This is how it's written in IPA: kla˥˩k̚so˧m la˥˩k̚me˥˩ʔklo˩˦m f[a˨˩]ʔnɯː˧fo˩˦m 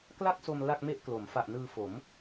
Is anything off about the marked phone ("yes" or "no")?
no